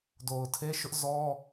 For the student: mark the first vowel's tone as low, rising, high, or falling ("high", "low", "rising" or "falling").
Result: low